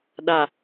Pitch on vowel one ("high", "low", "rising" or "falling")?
low